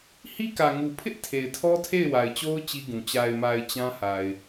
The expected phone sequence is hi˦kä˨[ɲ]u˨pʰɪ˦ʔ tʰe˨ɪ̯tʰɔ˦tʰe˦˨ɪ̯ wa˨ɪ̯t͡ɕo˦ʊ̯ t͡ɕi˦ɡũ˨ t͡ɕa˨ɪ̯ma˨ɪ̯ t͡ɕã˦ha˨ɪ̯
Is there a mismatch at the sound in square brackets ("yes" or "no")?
yes